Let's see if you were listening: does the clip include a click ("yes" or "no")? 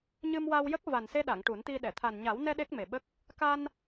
no